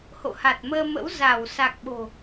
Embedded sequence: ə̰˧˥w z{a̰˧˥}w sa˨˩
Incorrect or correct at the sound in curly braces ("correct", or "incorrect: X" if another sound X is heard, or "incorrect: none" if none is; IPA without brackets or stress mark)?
incorrect: a˧˩